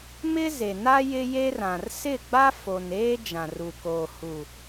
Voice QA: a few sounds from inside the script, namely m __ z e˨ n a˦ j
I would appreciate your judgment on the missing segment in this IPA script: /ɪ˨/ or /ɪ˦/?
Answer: ɪ˦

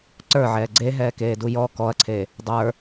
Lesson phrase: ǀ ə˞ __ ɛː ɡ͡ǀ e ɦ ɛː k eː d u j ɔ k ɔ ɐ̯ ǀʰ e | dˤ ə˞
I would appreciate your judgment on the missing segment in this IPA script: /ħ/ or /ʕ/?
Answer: ʕ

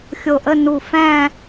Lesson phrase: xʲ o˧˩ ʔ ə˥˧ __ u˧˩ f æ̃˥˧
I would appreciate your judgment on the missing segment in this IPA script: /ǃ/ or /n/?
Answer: n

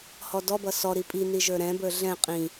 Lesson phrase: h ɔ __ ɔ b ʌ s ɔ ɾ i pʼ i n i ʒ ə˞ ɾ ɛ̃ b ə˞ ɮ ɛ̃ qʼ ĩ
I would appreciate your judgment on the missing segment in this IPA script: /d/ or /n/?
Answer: d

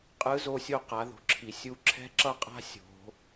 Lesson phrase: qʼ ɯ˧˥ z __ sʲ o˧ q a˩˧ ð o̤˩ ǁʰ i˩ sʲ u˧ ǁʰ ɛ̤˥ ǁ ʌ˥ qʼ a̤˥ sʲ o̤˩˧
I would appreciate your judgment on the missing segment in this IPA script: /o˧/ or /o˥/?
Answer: o˧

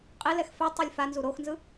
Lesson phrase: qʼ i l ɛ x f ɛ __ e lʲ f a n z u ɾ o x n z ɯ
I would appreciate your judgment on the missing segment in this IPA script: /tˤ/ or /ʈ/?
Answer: tˤ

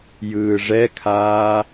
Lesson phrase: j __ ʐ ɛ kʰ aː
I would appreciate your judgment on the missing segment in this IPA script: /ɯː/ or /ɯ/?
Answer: ɯː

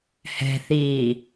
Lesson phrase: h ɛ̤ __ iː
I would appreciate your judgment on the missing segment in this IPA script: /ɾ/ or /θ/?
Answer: θ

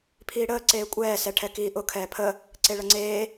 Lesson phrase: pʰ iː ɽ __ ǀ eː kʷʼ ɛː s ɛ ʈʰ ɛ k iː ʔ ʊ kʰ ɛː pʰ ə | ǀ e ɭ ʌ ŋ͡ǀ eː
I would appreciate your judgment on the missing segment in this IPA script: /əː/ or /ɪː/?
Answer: əː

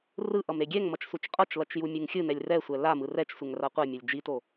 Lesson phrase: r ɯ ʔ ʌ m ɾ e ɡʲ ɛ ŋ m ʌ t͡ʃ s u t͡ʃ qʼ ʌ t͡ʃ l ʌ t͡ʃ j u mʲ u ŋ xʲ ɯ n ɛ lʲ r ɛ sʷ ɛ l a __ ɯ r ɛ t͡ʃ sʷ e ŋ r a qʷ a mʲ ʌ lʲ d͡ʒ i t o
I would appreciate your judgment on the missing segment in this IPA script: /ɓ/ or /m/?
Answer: m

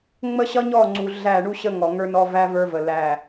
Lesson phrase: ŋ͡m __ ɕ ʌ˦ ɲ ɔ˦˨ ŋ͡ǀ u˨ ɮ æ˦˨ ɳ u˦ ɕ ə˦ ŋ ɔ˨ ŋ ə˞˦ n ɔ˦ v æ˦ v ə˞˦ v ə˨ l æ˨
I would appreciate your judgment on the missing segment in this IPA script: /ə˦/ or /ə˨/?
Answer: ə˦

